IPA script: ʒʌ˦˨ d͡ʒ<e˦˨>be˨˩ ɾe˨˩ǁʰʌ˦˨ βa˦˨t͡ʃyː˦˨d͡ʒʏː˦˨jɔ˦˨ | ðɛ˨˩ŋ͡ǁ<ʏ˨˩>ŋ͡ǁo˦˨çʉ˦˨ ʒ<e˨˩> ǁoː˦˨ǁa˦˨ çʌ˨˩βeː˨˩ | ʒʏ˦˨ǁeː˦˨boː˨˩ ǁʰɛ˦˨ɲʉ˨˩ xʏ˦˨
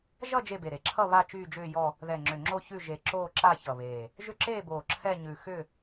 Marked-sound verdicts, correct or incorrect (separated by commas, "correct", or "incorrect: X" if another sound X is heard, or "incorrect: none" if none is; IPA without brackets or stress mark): correct, correct, correct